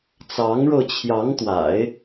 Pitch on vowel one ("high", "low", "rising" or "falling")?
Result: rising